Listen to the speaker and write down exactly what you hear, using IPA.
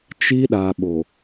t͡ʃi˦ɗa˨ɓo˨

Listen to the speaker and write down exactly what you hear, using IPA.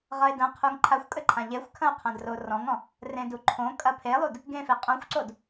ʁʌe̯dɐ̃qʰuŋ ǃʰaxʷkʼɘ ǃʰãʎexʷkʰɐ̃o̯ qʰɐ̃drorɔ̃ŋɔ̃ | rẽduǃʰõkʼɐ pʰelˠud | ɡẽfe qʼõxʷǀod

